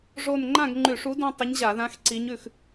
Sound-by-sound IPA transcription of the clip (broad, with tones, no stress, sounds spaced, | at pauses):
ʐ o˥˧ n ŋ͡ǃ ã˥˧ ɡ ŋ͡ǃ ʉ˧˩˧ ʂ u˧˥ d ũ˥˧ tˤ ə˧˥ ɲ ʑ a˧˩˧ ð ã˧˥ x ǀ i˧˥ ɲ ʉ˥˧ x